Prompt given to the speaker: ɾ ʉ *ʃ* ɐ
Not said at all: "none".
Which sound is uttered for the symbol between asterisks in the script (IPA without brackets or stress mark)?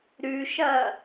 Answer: ʃ